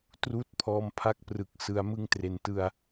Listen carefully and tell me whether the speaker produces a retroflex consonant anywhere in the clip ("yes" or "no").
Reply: no